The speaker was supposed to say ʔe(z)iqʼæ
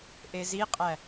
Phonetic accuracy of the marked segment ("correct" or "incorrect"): correct